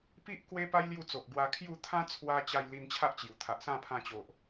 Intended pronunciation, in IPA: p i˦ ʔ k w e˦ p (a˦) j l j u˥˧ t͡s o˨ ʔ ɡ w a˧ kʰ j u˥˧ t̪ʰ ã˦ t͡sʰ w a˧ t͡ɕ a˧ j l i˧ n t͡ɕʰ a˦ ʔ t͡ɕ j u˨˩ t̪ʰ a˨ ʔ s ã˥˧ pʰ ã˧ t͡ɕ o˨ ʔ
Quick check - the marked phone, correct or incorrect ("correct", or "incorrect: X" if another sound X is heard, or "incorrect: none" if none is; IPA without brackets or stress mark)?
correct